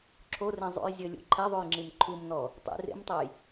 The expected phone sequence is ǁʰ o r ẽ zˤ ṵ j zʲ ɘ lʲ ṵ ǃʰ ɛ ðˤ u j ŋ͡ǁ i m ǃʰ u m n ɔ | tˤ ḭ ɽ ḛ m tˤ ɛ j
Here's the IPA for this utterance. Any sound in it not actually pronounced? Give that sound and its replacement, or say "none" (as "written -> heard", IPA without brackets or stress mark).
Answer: ɽ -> r